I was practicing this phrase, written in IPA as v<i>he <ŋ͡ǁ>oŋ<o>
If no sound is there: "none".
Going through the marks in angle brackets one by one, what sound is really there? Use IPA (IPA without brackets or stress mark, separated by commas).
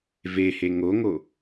e, ŋ, o